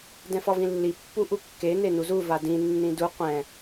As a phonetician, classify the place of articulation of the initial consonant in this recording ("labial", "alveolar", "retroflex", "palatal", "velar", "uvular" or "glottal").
alveolar